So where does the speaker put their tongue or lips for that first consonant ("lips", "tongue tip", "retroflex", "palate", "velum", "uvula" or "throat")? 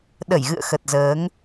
tongue tip